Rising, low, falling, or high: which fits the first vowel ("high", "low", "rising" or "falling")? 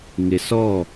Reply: low